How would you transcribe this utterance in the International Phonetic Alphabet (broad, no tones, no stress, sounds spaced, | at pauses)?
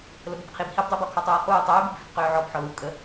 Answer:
l ə b ə b qʰ i b h i b dˤ əː b ɔ kʰ ɔ tˤ uː χ uː tˤ øː b u b v i b q øː ʕ ɔ b ħ ɔ l u kʼ ə